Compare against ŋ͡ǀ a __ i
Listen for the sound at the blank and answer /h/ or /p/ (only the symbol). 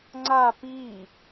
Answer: p